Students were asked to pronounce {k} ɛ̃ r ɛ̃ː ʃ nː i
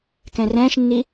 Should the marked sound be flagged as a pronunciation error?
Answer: no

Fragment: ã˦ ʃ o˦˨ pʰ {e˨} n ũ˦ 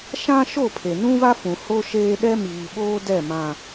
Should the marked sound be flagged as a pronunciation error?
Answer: no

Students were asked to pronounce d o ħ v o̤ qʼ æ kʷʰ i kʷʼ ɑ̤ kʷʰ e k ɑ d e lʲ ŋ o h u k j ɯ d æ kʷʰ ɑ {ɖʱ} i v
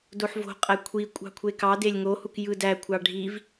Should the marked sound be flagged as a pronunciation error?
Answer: no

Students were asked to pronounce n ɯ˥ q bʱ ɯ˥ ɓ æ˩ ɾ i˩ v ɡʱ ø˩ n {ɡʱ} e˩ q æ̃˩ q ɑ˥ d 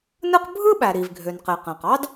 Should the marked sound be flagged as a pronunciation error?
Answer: yes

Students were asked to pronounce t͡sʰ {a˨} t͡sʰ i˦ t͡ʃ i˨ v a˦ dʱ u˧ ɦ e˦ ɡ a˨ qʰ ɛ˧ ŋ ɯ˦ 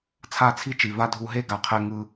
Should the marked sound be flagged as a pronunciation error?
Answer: yes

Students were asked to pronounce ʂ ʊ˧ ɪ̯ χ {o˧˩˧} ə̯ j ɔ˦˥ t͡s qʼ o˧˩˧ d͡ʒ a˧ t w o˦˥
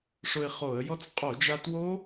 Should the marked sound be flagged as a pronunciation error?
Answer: no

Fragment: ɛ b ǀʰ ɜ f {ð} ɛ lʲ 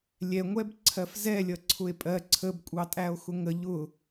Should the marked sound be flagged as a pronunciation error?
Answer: yes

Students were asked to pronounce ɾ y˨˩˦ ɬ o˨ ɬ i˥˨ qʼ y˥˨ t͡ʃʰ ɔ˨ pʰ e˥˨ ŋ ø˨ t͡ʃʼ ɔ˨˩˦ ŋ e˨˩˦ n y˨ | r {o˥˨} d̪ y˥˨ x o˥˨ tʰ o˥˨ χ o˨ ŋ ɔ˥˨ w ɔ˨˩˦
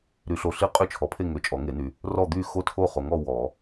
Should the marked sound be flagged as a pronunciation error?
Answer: yes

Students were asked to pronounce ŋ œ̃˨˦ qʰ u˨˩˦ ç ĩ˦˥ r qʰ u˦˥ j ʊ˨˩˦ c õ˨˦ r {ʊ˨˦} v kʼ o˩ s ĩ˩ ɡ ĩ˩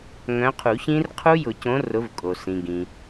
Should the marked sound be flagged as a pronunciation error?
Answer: no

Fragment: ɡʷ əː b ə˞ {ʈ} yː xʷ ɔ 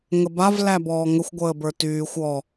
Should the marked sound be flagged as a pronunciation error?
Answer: yes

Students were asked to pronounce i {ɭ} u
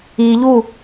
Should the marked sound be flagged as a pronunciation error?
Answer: yes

